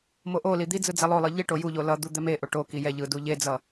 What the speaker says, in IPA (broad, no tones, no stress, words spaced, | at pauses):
moʔoli d̪id͡zɯ d͡zɛlˠolˠɯ ʎiʈo juʎo lʌ d̪ud̪ɛmeʔo ʈoki jɛʎɯ duʎed͡zʌ